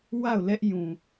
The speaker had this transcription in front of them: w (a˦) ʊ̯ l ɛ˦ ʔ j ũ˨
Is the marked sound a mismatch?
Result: yes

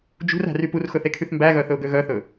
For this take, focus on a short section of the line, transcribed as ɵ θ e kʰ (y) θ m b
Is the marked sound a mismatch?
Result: no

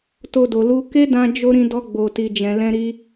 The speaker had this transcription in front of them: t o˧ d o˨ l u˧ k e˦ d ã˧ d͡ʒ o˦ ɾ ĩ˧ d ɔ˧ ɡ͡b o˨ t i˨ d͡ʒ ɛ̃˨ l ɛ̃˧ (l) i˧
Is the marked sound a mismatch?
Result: yes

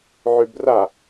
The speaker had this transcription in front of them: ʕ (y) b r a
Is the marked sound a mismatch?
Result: no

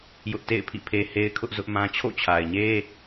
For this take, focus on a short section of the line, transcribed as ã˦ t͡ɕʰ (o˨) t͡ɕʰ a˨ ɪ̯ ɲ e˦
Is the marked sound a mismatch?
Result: yes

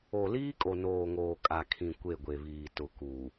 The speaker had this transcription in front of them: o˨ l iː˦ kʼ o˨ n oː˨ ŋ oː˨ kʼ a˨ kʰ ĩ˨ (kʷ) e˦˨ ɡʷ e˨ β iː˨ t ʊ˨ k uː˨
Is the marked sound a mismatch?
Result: no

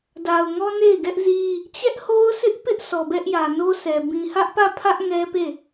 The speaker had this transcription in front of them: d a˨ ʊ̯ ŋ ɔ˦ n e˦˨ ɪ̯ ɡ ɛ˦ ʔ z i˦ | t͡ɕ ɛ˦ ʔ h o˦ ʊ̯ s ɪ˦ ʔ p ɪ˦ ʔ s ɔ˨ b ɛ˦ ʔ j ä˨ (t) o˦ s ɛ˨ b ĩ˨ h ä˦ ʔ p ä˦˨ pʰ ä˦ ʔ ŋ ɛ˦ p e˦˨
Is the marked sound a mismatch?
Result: yes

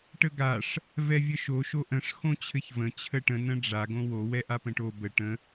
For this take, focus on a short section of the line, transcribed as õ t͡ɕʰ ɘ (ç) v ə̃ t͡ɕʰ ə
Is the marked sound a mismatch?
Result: no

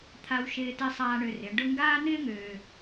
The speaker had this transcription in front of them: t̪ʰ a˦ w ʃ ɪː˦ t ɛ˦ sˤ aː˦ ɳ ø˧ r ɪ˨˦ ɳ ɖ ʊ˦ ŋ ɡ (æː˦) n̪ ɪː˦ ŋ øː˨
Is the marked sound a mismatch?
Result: yes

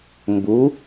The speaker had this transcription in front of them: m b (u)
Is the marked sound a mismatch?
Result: no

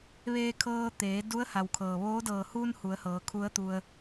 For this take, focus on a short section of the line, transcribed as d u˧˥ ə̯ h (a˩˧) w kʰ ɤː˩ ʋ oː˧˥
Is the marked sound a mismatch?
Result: yes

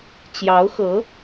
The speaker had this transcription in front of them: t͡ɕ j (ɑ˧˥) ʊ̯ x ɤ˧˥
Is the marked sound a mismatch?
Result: no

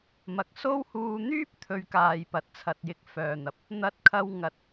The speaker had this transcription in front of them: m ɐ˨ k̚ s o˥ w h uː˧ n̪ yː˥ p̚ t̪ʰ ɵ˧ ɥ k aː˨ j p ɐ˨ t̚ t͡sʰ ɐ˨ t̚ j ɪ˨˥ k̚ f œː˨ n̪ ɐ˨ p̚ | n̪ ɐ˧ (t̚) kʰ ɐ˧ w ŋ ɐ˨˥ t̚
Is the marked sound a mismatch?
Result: no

